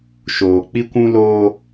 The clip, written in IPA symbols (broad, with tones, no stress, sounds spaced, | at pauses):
ʃ oː˨ k͡p i˦ kʷ ũ˦ l oː˦